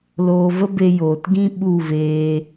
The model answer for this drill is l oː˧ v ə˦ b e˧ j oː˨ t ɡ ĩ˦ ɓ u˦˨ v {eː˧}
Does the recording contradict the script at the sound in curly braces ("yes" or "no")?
no